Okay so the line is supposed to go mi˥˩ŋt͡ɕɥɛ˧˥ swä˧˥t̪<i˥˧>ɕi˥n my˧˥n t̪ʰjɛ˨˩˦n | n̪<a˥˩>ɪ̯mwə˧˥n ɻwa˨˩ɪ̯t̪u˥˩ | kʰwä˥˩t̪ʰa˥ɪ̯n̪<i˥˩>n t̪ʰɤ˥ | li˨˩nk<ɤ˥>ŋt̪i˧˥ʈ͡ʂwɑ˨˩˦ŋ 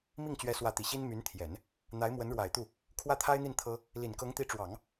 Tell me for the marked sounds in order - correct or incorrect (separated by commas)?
incorrect, incorrect, correct, incorrect